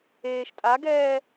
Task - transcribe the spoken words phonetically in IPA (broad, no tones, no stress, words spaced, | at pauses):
eːʃ tʼaɡɛː